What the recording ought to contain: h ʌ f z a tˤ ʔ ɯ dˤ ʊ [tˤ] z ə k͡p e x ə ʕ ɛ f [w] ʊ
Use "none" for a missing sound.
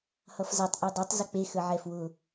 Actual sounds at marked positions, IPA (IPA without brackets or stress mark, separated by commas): tˤ, w